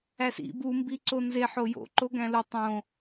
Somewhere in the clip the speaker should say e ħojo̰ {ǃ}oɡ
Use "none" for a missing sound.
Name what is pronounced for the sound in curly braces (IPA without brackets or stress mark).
ǃ